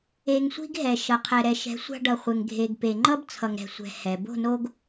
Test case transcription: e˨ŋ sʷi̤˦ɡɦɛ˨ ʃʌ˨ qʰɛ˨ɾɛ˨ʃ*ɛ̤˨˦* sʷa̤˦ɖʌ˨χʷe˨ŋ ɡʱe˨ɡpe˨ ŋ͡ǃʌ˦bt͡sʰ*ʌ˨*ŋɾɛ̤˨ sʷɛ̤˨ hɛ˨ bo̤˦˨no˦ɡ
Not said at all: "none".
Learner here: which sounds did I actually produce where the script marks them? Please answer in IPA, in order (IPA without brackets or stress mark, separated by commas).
ɛ̤˨˦, ʌ˨